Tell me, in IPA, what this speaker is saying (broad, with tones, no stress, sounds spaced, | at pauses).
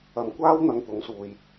ɐ˨ m kʷ aː˥ w n̪ ɐ˧ ŋ t̪ ʊ˨˥ ŋ s uː˨ j